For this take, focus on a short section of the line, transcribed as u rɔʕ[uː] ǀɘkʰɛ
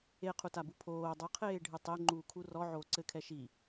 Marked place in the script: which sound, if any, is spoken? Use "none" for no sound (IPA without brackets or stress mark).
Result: oː